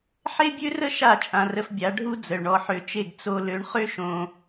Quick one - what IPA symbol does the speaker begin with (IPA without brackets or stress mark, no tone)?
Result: ħ